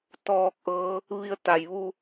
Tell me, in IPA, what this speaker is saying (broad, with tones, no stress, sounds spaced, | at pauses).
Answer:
t̪ ɔː˥˨ k̚ ʔ ɤː˧˥ | ʋ i˧ ə̯ t̪ a˩ j ʋ u˧